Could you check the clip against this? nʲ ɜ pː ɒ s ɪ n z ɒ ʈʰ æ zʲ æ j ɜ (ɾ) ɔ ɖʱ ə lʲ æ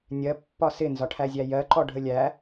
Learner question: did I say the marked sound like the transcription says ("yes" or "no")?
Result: no